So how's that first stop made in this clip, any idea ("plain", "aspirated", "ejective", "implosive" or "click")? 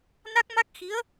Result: plain